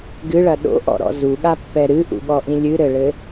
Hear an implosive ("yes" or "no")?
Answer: yes